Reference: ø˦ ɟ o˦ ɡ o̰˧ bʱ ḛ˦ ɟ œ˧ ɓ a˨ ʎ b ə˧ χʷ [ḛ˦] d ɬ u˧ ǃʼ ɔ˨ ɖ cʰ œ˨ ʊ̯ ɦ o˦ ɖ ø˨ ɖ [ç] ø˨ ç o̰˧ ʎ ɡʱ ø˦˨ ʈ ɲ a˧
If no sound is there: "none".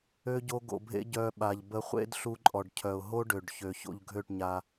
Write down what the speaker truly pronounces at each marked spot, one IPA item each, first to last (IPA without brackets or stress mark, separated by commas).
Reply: ḛ˦, ç